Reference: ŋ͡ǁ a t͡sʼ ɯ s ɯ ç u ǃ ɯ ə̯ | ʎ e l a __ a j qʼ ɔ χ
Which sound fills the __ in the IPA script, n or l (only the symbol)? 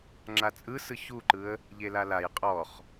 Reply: l